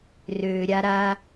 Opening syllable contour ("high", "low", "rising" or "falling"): low